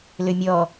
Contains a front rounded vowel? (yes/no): yes